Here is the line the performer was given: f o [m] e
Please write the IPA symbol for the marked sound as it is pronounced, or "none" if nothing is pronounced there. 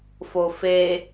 f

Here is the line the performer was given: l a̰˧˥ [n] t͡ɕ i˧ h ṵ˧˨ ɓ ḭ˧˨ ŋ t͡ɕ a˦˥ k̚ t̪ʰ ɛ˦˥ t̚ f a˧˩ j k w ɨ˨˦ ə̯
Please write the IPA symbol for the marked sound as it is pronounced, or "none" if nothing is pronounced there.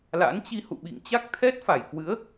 n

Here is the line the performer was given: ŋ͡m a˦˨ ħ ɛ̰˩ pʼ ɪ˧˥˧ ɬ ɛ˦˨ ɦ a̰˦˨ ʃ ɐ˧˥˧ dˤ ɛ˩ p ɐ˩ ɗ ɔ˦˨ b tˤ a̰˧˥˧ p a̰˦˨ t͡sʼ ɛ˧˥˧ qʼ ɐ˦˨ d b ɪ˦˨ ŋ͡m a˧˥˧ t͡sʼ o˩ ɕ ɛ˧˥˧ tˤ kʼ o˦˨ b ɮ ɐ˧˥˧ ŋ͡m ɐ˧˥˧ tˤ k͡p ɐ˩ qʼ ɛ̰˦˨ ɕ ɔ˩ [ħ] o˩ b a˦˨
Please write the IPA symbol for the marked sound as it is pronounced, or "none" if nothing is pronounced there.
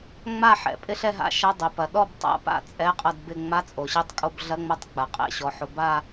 ħ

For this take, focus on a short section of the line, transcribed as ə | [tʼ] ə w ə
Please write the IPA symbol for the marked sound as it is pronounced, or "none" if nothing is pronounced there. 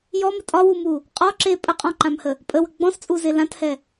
pʼ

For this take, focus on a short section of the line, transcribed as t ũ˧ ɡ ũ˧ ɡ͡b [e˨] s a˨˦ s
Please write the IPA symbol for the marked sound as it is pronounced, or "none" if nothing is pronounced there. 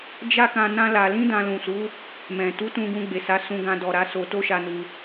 e˨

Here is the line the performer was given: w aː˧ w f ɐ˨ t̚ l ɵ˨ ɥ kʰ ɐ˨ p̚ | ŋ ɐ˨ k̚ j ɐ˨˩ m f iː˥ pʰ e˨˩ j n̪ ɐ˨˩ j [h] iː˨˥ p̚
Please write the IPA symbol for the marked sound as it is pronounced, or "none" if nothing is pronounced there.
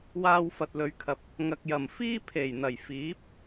f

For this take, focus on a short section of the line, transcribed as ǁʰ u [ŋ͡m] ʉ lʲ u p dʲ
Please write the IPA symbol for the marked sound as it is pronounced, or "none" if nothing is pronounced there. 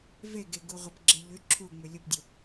ŋ͡m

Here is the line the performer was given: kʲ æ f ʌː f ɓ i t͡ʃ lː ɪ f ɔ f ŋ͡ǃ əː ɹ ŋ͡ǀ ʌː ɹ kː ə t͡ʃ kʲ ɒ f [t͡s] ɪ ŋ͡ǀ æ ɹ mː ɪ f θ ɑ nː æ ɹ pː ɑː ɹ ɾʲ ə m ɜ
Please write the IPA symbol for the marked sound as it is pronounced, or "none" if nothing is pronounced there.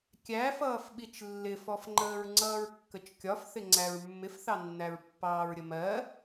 θ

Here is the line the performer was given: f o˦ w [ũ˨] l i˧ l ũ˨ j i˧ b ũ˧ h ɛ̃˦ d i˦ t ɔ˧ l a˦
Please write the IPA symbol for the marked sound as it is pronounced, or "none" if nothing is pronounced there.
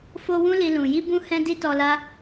ũ˦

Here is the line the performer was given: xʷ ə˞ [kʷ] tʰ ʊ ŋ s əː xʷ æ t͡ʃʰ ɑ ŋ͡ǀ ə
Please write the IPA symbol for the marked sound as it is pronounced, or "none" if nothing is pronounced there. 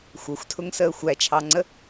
xʷ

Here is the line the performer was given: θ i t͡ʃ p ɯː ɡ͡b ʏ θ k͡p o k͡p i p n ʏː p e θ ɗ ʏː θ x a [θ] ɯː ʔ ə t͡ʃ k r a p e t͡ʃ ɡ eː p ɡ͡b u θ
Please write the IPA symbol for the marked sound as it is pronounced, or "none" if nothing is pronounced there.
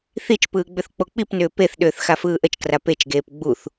f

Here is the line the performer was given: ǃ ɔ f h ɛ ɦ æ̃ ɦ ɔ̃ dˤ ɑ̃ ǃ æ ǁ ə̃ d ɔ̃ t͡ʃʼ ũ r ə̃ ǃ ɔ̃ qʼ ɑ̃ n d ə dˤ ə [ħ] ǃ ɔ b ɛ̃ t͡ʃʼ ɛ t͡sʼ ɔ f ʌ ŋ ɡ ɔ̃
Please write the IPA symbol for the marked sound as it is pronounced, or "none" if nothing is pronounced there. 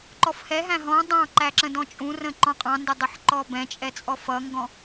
ħ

